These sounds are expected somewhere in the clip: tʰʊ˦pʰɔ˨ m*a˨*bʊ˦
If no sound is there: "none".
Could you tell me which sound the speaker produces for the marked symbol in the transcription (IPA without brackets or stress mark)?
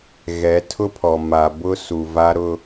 a˨